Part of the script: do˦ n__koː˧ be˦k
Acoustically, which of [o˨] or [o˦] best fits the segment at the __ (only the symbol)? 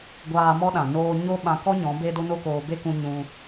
o˦